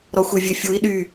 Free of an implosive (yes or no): no